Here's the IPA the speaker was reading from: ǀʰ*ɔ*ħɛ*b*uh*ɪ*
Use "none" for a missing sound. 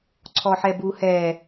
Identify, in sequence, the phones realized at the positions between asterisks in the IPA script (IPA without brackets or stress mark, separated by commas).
ɔ, b, ɛ